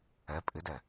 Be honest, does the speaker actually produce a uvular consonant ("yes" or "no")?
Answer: no